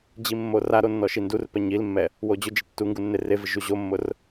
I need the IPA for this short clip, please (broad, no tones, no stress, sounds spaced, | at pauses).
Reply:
d͡ʑ i mː o r a ɾ o nː ɔ ʃ i n d u r p ɛ ɲ i l mː ɛ | w o d͡ʑ ʊ d͡ʒ ɪ tː u ŋ ɡ u nː e r e v ɪ ʒ u ʑ o mː ʊ r